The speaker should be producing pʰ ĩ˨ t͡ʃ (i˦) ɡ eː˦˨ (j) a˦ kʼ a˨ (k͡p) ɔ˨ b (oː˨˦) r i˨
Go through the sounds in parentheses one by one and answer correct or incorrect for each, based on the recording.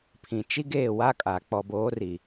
correct, incorrect, correct, correct

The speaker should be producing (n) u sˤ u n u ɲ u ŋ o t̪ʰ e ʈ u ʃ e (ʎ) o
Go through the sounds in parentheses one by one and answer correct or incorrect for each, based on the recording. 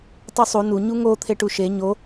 incorrect, incorrect

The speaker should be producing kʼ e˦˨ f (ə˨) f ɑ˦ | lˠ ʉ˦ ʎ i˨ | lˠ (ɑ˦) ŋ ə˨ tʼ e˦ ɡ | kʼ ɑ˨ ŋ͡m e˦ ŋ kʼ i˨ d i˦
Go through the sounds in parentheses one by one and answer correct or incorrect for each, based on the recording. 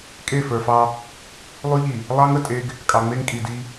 incorrect, correct

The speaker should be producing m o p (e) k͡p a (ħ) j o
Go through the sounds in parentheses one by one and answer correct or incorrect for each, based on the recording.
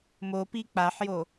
incorrect, correct

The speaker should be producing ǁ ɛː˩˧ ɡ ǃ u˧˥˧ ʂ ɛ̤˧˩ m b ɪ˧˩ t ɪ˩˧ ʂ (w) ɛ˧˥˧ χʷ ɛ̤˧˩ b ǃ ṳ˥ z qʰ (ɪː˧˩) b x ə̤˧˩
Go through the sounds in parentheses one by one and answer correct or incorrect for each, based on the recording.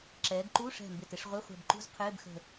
incorrect, incorrect

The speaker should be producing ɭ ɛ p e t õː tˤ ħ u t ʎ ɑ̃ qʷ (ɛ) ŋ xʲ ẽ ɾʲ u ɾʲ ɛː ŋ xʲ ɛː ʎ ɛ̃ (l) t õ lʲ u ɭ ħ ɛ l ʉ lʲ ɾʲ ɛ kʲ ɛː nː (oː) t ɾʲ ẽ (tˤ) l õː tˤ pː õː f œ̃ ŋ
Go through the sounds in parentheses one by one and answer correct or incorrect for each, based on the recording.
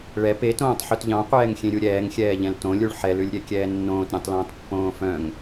incorrect, correct, incorrect, correct

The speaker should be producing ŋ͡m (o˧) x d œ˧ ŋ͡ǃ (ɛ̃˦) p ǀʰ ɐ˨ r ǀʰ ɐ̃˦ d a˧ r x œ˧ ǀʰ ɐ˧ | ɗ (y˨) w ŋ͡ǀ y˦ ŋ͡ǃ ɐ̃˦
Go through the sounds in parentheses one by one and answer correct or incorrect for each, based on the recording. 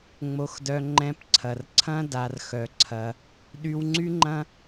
correct, incorrect, incorrect

